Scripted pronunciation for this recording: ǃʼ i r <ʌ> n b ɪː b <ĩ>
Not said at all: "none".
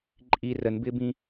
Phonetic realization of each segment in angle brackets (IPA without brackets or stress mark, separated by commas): ə, ĩ